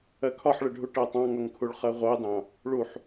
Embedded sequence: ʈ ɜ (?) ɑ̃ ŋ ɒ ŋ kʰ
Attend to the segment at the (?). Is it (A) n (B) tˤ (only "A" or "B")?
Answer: B